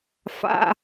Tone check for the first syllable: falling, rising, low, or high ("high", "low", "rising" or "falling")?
low